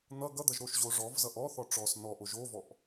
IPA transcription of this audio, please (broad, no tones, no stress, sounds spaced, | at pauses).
n̪ ʌ ɡ ʌ d̪ ʌ ʒ ɾ o ʃ ʑ o ʐ ɔ v z ʌ ʔ ɔ θ ɔ ʈ͡ʂ ɔ s n ɔ ʔ o ʒ o v ɔ ʔ